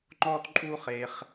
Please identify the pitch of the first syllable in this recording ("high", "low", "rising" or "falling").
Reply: high